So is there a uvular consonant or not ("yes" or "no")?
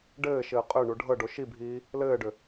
yes